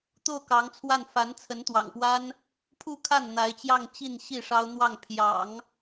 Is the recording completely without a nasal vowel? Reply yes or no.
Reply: yes